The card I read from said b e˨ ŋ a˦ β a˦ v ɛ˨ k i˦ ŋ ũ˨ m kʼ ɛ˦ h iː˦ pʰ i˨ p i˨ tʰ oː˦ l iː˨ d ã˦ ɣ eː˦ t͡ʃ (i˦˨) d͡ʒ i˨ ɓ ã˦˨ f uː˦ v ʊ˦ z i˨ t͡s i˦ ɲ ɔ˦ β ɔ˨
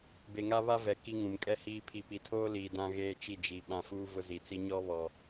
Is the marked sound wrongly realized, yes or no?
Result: no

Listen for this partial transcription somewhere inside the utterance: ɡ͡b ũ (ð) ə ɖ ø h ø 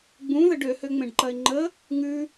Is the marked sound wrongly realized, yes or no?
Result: no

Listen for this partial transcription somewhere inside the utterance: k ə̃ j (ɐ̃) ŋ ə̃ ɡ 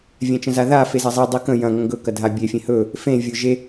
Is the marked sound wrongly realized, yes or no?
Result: no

